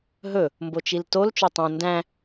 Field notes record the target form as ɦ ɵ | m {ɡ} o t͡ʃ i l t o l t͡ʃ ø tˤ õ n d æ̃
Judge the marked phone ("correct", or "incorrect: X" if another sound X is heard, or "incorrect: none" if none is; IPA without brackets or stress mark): incorrect: b